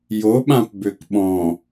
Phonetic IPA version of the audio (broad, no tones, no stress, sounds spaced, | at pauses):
j o ɓ ã p b ø k ɓ ɔ̃